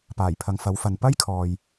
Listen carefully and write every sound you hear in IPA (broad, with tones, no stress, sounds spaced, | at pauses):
p aː˨˩ j pʰ ɐ˨ ŋ f ɐ˨˥ w f ɐ˨ n p ɐ˥ j kʰ ɔː˨ j